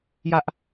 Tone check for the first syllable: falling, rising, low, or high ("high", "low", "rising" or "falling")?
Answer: high